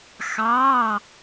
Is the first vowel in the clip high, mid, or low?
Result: low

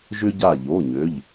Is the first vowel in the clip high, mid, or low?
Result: high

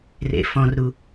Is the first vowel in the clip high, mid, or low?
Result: mid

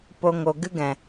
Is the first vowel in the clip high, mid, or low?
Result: mid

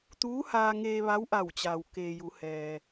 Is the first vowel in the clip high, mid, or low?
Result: high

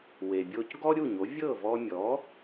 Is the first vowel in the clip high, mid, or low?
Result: mid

